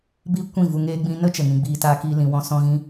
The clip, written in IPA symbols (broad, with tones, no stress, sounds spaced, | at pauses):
b iː˦ kʷ ĩ˦˨ v u˧ ŋ eː˦ ɡ͡b ĩ˧ n ə˦ t͡ʃ ə˨ ŋ ĩ˧ ɡ͡b iː˧ t aː˦ k iː˦ l ĩ˧ w ɔ̃˦ s ɔ̃˦ ɣ ĩ˦